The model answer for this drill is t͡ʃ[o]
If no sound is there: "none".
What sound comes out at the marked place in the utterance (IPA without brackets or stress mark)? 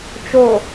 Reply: o